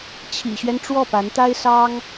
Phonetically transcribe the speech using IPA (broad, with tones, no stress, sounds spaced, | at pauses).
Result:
t͡ɕʰ ḭ˨˩ ɕ ɥ ɛ˦ n ʈ͡ʂ w ɔ˥˩ p a˧˥ n t̪ a˥ ɪ̯ s ɑ˥ ŋ